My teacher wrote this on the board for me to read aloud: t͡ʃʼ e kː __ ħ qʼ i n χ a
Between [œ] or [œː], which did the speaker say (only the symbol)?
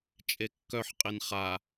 œ